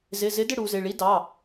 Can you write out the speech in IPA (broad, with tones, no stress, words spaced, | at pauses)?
zɪ˩˧˩zɪ˨˥ dɪ˥˧ɽu˩˧zɪ˩˧˩ ɭi˨˥dɑ˩˧˩